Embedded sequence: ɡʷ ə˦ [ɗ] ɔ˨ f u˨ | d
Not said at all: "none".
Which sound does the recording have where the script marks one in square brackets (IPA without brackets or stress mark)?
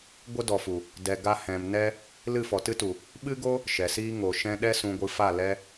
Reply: d